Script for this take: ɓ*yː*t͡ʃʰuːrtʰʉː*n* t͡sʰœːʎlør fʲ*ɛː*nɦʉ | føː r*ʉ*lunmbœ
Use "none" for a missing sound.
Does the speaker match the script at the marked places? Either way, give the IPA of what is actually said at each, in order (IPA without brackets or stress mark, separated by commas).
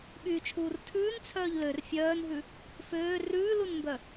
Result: yː, n, œː, ʉː